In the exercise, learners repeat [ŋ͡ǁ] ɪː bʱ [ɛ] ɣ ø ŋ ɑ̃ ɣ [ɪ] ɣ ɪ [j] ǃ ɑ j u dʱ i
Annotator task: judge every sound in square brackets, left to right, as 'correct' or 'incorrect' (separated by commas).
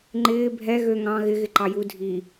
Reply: incorrect, correct, correct, incorrect